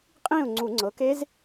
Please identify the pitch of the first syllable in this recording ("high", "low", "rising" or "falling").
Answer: falling